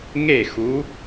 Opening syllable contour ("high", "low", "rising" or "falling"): falling